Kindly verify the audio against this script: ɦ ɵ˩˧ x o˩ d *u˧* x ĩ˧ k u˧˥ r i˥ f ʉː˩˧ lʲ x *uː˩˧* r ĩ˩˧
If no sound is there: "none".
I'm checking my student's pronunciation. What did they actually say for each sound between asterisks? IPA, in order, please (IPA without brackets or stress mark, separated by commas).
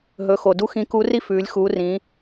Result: u˧, uː˩˧